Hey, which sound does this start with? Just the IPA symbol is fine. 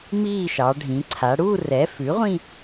m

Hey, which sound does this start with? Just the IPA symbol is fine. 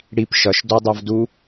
ɽ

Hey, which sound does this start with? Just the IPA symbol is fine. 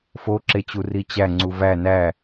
f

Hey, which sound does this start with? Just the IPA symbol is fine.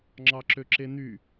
ŋ͡ǁ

